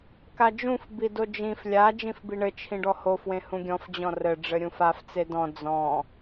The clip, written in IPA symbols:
k a d͡ʒ ũ f b i d o d͡ʒ ĩ f lʲ a d͡ʒ ĩ f b i ɳ ɘ t͡ʃʰ ĩ ɖ ɔ h o f w ẽ h ũ ɡʲ ɔ̃ f d͡ʑ ɔ̃ r ɘ ɖ͡ʐ ɘ ɾʲ ũ f a f t͡s e d ɔ̃ d͡z ɔ̃

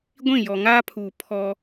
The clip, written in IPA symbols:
ɡʷ ĩ˦˨ j ɔ˨ ŋ aː˦ pʰ uː˨ pʰ ɔ˦

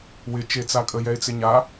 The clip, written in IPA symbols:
w ɪ t͡ʃ e t͡s a kʼ ə j ɛ ɪ̯ t͡s ɪ ɲ a

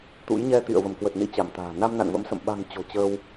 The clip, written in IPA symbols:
t̪ ṵ˧˥ j ɲ ɛ˧ t̪ ḭ˧˨ ə̯ v ə˧˩ m k w ə˨˩ t̚ n ḭ˧˥ t͡ɕ a˧˩ m t̪ a̤ː˨˩ n a˧ m n a̰˧˨ n v ə̰˧˥ m s ə̰˧˨ m ɓ a̤˨˩ ŋ t͡ɕ o̤˨˩ t͡ɕ əː˧ w

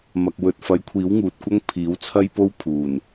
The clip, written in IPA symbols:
m ɐ˨ k̚ w ɵ˨ t̚ f ɐ˨˥ j kʷʰ iː˨˥ w ŋ uː˨ t̚ kʷ ɐ˥ ŋ pʰ iː˨˥ w t͡sʰ ɐ˥ j p o˥ w pʰ uː˨˩ n

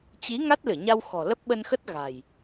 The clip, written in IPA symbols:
t͡ɕ i˨˦ ŋ a˦˥ t̚ l ɨ˧˩ ɲ a˧ w x ɔ̤˨˩ l ə˦˥ p̚ ɓ ə˧ n x ə˦˥ t̚ ɣ a̤˨˩ j

